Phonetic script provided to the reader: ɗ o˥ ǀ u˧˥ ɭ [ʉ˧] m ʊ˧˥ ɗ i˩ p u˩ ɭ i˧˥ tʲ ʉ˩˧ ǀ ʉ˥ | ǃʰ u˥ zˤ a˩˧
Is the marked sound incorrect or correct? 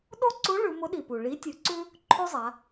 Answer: incorrect